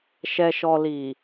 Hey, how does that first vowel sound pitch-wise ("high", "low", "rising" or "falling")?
low